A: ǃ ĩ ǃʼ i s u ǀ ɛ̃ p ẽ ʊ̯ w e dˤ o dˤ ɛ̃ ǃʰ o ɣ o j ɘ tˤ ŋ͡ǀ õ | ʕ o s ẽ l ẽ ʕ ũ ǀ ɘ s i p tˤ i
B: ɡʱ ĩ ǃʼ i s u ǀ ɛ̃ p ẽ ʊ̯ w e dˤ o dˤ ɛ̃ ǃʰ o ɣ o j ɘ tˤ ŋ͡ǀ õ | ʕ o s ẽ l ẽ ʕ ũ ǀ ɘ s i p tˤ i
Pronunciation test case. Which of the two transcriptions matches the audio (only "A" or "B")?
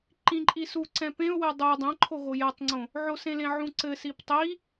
A